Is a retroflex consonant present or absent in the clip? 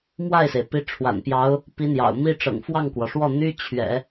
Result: present